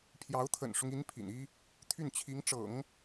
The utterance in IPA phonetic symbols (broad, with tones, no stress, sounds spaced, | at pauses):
pʰ j ɑ˧˥ ʊ̯ t̪ʰ ə̰˨˩ n ʂ ʊ˦ ŋ i˧˥ n pʰ ḭ˨˩ n i˥ | t̪ʰ y˥˩ n t͡ɕʰ i˧˥ ŋ ʈ͡ʂ ɤ̰˨˩˦ ŋ